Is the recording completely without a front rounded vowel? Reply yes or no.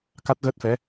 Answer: yes